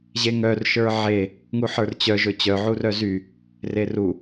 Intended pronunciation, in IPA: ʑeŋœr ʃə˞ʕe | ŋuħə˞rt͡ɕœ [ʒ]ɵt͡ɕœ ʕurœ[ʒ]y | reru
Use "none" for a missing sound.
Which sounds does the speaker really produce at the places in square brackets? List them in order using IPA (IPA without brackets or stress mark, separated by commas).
ʒ, z